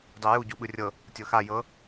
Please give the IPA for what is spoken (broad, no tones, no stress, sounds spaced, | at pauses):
dˤ i j u ɟ u ɓ ɯ rʲ ɤ | tʲ ɤ x a j ɤ